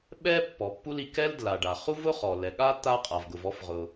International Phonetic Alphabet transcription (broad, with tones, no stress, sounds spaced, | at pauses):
ɓ ɛ˥ pː ɔ˩ pː u˥ l i˩ k ɛ˥ l d l a˩ ɖ a˩ χ u˥ v ʊ˥ χ ɔ˩ l ɛ˩ ɠ a˥ t̪ a˥ qʼ a˩ v ɡ ʊ˩ v ɔ˥ f ʁ ʊ˩